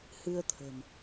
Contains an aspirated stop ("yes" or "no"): yes